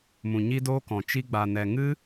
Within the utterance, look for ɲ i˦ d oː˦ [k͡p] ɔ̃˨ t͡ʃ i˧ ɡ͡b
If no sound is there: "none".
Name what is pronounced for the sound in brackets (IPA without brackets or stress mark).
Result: k